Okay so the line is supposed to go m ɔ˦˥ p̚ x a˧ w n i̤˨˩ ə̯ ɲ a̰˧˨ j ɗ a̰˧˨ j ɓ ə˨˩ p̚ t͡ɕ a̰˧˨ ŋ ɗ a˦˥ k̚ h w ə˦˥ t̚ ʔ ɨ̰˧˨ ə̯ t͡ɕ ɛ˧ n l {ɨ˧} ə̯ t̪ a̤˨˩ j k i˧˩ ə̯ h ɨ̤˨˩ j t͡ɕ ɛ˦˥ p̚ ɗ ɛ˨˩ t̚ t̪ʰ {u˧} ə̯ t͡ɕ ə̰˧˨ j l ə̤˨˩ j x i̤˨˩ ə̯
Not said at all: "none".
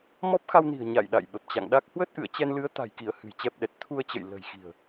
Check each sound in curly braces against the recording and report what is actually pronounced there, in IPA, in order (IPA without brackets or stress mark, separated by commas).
ɨ˨˦, u˧